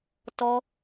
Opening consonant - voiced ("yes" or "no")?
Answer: no